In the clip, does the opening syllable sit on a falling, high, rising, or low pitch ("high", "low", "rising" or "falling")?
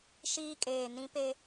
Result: high